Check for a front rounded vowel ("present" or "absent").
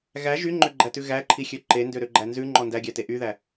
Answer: present